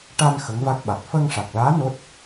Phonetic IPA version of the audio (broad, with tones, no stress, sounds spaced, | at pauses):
ʈ a˧ n x ə˧˥ ŋ v a˦˥ k̚ ɓ a˨˩ t̚ f əː˧ ŋ ʂ a˨˩ k̚ l aː˧˥ n o˦˥ t̚